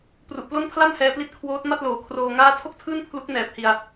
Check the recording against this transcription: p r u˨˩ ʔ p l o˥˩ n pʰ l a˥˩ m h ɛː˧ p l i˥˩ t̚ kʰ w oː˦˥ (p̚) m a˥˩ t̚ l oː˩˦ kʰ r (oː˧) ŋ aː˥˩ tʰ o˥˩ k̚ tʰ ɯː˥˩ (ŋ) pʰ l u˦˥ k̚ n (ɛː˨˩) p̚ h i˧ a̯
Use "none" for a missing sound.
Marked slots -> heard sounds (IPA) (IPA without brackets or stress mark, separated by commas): t̚, oː˧, n, ɛː˨˩